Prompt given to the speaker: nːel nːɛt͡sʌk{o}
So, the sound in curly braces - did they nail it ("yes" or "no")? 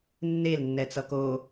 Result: yes